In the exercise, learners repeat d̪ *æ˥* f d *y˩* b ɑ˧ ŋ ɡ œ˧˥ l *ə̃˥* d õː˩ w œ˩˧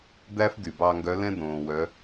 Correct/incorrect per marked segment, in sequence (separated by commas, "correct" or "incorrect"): correct, correct, incorrect